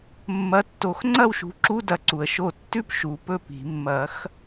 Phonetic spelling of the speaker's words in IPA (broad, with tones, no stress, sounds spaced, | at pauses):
mː ɐ˨˦ tː o˨˩˦ x ŋ͡ǀ ɐ˥˨ w ʃ ṳ˨˦ ǁ u˧˥˧ d ɐ˨˦ ǀ u˩ ə̯ ʃ o˧˩ tː ʉ˥˨ p ʃ u˨˩˦ p ɵ˥˨ p i̤˨˩˦ mː ɐ˨˩˦ x